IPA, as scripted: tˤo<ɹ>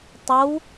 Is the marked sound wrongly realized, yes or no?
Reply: yes